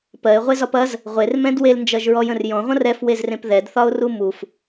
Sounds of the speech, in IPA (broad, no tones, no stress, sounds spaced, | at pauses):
p ɜ ɪ̯ ʁʷ e z ɒ p ɐ z | ʁʷ e r m ɛ̃ d w e l n d͡ʒ ɜ ʒ ɹ ɔ j ə̃ r j ɔ̃ ʁʷ ɐ̃ r ɛ f w e z r ẽ p ð ɛ d θ ɒ ʊ̯ r u m u f